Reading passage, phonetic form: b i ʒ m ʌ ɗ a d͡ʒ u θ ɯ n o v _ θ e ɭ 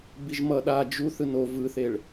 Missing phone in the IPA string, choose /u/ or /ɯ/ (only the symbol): ɯ